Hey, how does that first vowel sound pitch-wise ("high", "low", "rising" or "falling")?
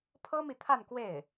high